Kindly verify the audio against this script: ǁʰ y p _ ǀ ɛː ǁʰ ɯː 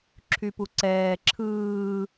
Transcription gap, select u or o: u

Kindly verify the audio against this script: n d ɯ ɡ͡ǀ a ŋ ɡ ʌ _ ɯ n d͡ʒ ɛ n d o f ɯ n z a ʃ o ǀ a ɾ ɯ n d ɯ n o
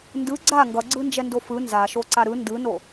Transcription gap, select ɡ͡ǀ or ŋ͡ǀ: ɡ͡ǀ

